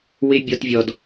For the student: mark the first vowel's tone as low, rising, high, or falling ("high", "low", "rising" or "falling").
high